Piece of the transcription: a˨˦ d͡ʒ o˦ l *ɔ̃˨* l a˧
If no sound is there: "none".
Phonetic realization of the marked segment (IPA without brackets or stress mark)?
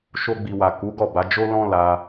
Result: ɔ̃˦